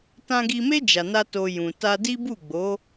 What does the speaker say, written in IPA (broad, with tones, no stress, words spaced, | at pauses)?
tã˧ɡi˧me˦ d͡ʒa˧na˦to˧ jũ˨ ta˧di˦ bu˦˨ɡ͡bo˨˦